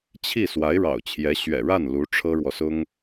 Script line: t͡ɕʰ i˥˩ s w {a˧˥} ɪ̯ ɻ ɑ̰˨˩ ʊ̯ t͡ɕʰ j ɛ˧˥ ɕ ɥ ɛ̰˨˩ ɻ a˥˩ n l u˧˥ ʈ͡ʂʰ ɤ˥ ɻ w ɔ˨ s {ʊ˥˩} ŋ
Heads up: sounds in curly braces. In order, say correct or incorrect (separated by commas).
correct, incorrect